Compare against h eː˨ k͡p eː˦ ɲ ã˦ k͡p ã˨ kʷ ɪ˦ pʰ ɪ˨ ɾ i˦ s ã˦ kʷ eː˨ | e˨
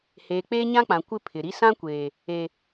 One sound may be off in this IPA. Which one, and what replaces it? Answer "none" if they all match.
none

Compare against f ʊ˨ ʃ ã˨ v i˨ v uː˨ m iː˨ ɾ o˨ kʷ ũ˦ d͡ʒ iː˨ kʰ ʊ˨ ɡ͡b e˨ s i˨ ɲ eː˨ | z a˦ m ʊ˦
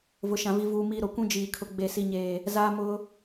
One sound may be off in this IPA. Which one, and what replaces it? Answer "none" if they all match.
f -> v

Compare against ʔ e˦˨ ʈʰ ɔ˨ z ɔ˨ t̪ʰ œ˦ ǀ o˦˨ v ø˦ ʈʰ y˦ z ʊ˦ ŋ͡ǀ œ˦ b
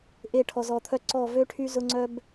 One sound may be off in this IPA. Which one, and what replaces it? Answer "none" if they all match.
o˦˨ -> ɔ˦˨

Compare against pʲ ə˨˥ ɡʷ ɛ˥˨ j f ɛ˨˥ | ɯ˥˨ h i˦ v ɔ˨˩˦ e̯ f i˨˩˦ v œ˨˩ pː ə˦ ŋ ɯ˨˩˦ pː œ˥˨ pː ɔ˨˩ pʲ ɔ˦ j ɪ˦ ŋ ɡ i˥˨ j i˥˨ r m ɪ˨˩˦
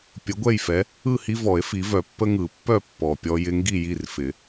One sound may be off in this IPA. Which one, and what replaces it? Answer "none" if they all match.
m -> f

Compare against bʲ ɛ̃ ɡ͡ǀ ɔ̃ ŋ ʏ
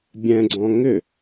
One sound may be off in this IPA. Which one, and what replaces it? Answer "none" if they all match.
none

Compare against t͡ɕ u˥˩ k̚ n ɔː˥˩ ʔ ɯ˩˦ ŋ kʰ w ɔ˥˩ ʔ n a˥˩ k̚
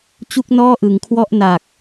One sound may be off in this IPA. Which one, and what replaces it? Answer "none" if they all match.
a˥˩ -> a˨˩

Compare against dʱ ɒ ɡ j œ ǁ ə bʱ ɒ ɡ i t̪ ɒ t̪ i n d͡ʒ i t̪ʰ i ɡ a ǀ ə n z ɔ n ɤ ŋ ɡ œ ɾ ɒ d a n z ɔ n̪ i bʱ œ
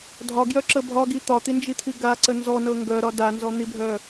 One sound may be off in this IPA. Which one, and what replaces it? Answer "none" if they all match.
none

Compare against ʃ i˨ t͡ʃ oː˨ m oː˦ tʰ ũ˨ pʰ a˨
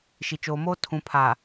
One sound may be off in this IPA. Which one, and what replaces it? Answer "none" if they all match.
none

